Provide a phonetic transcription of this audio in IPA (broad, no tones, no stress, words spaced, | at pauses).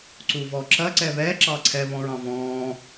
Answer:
ǀuvɔǁɐ ǀɛβɛ ǁɑǀʰɛ βɔ̃ɹɑ̃vɔ̃ː